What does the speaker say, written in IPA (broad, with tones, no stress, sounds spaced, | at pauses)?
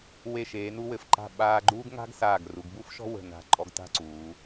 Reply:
w e˧˩ ʃ eː˩˧ n u˧ w ɘ˩˧ f ǃ a̤˧˩ ɓ aː˧ ɡ͡ǃ uː˥ ɡ ŋ a̤˥ ɡ s aː˧˩ ɡ r u˩˧ ɡ b u˥ f ʃ ɔ̤˥ w ə̤˧˩ n a̤˧˩ ǃʼ ɔ˧ ɡ t a̤˥˧ ǀ uː˩˧